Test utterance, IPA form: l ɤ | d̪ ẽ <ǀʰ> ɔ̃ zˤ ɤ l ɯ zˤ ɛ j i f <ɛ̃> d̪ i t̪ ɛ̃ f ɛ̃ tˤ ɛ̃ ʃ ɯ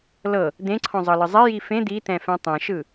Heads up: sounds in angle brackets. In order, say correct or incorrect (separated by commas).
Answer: correct, incorrect